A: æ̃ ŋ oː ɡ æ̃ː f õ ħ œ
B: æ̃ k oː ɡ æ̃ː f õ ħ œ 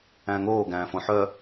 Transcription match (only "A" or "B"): A